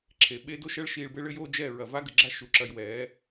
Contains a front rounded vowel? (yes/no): no